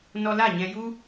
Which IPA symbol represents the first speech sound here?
n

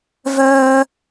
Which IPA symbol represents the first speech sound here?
v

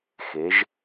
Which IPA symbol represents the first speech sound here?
x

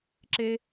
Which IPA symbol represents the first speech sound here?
ǁ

